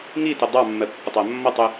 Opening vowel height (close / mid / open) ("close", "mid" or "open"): close